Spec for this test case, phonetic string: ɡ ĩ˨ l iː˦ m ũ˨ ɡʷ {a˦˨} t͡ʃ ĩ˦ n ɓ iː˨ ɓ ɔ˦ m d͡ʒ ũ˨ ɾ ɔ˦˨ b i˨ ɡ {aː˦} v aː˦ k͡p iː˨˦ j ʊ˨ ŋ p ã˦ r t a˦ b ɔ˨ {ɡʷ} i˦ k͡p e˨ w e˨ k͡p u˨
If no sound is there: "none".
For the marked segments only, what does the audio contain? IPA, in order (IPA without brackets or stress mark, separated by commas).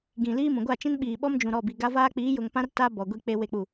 a˦˨, a˦, ɡʷ